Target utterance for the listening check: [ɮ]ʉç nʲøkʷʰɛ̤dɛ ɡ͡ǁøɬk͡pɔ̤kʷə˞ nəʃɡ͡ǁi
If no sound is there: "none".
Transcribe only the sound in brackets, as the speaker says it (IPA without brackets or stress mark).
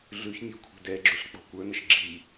ɮ